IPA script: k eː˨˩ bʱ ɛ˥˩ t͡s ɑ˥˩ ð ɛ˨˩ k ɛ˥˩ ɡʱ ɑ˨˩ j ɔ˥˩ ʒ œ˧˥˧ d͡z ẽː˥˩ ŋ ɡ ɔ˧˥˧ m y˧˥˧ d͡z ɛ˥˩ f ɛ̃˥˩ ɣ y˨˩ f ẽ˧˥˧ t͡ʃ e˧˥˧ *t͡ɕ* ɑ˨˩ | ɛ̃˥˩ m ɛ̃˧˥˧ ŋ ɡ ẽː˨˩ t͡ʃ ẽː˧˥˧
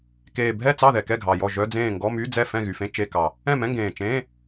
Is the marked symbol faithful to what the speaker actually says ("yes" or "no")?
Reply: no